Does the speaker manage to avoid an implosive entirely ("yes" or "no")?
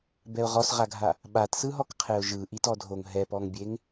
no